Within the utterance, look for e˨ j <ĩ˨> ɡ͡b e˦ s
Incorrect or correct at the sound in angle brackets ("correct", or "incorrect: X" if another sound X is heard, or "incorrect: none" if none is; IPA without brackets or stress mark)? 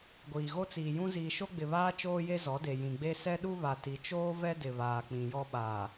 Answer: correct